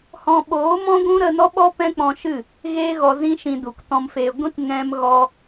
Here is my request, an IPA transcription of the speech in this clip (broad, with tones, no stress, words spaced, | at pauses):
hɔ̃˧ɓoː˨˦mɔ̃˦ɡʷũ˦ ɾə˧nɔ˦ɓɔ˦ pɛ̃˦k͡pɔ̃˧ʃɨ˦˨ | ɣeː˦ɣɔ˧zĩ˦ʃĩ˧ du˨ktɔ̃˧mfe˧ ɡʷĩ˦t ŋɛ̃˧m ɣɔ˧